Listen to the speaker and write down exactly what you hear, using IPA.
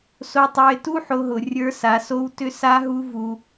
s o˧ tˤ ə˞˧ ɪ̯ t u˥ ħ o˧ ɦ ʊ˩ rʲ ə˞˧˥ s a˩˧ s o˧˥ w t ʏ˧˥ s a˧˥ ɦ u˧ v u˩

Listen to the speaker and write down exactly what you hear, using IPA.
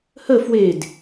h ə f w e d

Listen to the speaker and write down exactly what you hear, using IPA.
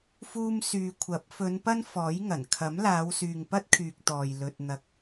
f uː˧ m s yː˨ kʷʰ ɐ˨˥ p̚ f ɵ˨˧ n p ɐ˥ n f ɔː˨˥ j ŋ ɐ˨˩ n kʰ ɐ˨˥ m l aː˨˧ w s yː˨ ŋ p ɐ˥ t̚ kʰ yː˨ k̚ t̪ ɔː˨ j l ɵ˧ t̚ n̪ ɐ˧ k̚

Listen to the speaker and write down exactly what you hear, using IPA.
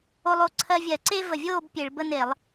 o˦ lˠ o˥˨ ǀʰ ɜ˦ vʲ ɜ˧˩˧ ǀ e˦ v ə˧˩ vʲ oː˥˨ b pʲ e˧˩˧ ɭ b ə˦ n e˧˩˧ lˠ

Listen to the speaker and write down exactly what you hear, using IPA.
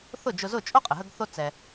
θ ʊ˥˩ d͡ʒ ʊ˧ z ʊ˥˩ t͡ʃʼ o˥ qʼ ə˩ ɦ ə˧ ɡ θ o˧ t͡s ɛ˩

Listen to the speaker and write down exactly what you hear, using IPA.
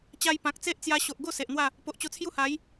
t͡ɕ a˧ j p ã˨ k̚ t͡s e˦ ʔ t͡s j a˧ ɕ o˨ ʔ ɡ o˥˧ s e˨ ʔ n̪ w a˥˧ | p o˨ ʔ t͡ɕ o˧ t͡sʰ j u˦ h a˨˦ j

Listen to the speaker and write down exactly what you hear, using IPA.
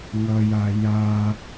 ŋ ʌ j a j a

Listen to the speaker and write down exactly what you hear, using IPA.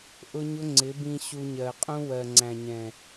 ʔ ʊ˦ ɲ ʊ˦ ŋ͡ǀ ɪ˨˦ b ĩ˧ ɕ u˧ ɲ ɜ˨ qʼ ũ˦ w ɜ˨ ŋ͡ǀ æ̃˨ ɲ ɛ̃˨

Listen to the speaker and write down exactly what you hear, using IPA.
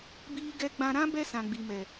b iː˦ ɡ ɛ˦ ɡ͡b ã˦ ɾ ã˦ b ɛ˦ s ã˨ ɡ͡b i˨ m ɛ˨

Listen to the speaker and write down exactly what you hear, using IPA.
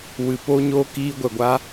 w ɨ˧ p o˦ ɲ oː˦ k iː˦ ɡʷ ɛ˧ ɡʷ a˦

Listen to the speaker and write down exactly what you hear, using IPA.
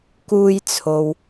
k uː˧ j t͡sʰ o˨ w

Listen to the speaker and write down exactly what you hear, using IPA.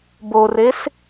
b o r e s

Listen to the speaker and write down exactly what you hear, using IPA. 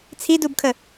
t͡sʰ i d u b kʰ ə

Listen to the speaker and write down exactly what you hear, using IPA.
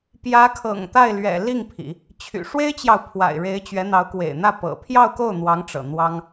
p j ä˧˥ kʰ ɤ̰˨˩ ŋ t̪ a˥˩ ɪ̯ l ɥ ɛ̰˨˩ l i˥˩ ŋ pʰ ḭ˨˩˦ | t͡ɕʰ y̰˨˩ ʂ w e˥ ɪ̯ t͡ɕ j ɑ˨ ʊ̯ pʰ w a̰˨˩ ɪ̯ ɻ e˧˥ ɪ̯ t͡ɕ ɥ ɛ˧˥ n̪ ɑ˧˥ ʊ̯ k w ḛ˨˩ ɪ̯ n̪ ä˥˩ p ɤ̰˨˩ pʰ j ɑ˥˧ ʊ̯ k o˥˩ ʊ̯ n̪ w ɑ˧˥ ŋ ʈ͡ʂ ɤ̰˨˩ n̪ w ɑ˥ ŋ

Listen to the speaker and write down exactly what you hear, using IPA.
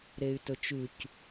ɾ e y̯ t ɵ t͡ʃ ʉ c

